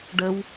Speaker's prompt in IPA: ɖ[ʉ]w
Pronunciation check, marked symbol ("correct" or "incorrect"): incorrect